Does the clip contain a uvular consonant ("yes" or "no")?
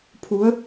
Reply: no